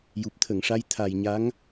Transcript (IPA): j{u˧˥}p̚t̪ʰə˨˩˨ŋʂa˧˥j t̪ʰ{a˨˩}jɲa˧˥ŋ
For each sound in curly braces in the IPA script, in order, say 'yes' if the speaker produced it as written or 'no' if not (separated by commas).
no, yes